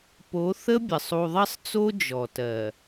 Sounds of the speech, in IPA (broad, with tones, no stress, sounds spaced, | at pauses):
p o˨˦ θ ə˦ bʲ ə˨ sˤ u˨ ðˤ ɜ˦ sˤ t͡s o˦ d͡ʒ ɔ˨ t ɜ˨